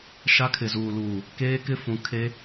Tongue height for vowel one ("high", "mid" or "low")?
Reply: low